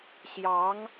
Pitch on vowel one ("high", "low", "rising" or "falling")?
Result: rising